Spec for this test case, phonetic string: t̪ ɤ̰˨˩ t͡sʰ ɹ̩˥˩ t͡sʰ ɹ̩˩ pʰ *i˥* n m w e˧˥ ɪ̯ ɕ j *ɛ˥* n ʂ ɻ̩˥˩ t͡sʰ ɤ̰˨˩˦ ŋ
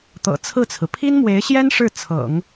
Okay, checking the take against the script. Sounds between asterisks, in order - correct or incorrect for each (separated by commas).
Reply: correct, correct